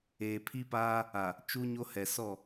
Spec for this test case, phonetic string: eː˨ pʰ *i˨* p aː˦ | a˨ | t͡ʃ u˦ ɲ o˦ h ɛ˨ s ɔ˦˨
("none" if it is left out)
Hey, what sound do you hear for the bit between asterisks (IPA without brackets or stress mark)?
i˦